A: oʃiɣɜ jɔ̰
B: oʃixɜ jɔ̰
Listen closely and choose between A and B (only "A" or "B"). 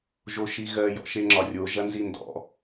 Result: A